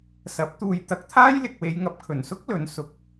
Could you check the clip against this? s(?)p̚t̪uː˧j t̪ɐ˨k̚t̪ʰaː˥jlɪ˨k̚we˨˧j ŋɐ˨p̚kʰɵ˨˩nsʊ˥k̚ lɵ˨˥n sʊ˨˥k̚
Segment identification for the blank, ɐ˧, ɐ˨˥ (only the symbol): ɐ˨˥